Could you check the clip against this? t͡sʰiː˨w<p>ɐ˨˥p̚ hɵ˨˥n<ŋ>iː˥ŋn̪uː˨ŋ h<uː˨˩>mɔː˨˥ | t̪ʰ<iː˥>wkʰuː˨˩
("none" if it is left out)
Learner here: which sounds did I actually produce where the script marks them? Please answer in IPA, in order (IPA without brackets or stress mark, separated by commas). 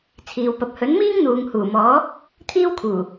p, m, uː˨˩, iː˥